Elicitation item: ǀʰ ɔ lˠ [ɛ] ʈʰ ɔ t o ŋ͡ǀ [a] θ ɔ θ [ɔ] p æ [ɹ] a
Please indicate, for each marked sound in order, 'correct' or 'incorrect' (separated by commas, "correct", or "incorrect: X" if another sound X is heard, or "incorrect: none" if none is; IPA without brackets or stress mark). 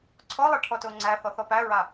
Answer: correct, incorrect: æ, correct, correct